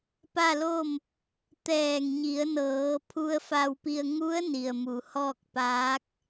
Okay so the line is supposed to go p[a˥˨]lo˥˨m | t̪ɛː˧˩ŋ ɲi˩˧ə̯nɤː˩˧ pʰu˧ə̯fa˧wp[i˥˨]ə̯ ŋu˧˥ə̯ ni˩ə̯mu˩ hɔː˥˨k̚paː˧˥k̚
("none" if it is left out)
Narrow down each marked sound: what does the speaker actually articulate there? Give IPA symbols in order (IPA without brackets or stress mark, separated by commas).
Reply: a˥˨, i˧